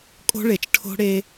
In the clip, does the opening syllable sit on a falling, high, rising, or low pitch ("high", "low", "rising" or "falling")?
high